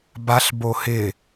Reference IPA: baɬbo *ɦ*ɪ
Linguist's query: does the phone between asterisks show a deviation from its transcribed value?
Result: yes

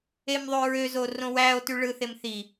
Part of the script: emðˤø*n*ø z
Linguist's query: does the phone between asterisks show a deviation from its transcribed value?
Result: yes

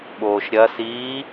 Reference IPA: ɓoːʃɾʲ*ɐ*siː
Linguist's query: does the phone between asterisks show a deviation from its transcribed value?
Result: no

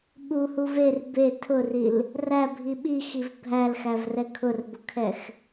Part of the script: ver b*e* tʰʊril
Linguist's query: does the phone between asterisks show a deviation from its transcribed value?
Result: no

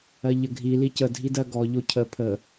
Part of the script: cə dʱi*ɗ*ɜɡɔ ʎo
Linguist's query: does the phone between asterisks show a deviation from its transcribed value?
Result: yes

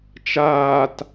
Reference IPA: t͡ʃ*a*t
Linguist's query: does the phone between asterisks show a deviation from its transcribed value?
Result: yes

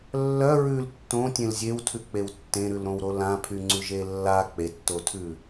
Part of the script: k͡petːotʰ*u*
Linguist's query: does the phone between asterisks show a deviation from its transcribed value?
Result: yes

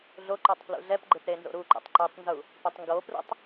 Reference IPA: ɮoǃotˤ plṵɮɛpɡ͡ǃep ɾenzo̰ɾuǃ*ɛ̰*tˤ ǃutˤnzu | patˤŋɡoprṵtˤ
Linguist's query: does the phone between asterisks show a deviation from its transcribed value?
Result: no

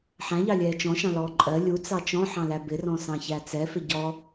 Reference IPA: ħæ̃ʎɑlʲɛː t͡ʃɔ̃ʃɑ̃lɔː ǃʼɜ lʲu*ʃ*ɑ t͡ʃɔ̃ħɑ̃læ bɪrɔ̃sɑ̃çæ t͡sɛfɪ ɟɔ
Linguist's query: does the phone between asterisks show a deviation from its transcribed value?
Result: yes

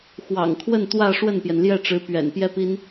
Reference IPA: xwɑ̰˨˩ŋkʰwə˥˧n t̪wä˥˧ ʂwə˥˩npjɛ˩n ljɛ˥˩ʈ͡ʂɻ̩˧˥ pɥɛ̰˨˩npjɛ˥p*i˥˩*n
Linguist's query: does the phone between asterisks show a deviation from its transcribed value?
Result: yes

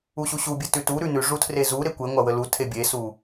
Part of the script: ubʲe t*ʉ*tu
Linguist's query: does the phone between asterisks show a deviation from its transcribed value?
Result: no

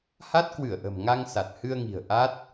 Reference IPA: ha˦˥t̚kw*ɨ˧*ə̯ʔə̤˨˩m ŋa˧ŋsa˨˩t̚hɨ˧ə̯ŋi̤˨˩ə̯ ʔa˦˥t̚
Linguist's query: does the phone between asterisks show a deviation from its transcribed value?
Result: yes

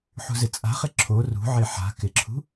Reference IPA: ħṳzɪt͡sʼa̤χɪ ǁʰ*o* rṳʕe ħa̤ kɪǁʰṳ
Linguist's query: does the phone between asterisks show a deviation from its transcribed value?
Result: no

